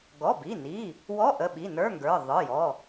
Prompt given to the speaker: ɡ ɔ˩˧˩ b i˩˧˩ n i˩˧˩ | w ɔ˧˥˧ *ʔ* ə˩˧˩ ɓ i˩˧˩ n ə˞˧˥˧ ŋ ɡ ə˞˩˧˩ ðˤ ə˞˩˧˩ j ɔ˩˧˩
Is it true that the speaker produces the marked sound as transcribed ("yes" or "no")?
yes